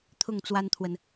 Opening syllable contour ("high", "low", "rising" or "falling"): falling